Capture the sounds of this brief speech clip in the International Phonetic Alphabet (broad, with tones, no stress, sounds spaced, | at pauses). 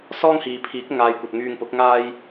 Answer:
s ɔː˥ ŋ h iː˨ pʰ iː˨˥ k̚ ŋ aː˧ j kʷ ɐ˨ t̚ ŋ yː˧ ŋ p ʊ˨˥ k̚ ŋ aː˥ j